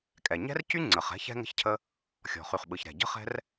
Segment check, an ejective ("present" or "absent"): present